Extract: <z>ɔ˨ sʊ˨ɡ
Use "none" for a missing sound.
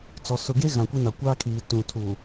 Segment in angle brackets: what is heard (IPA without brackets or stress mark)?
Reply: t͡s